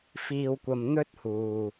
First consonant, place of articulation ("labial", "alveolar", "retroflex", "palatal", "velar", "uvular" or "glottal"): labial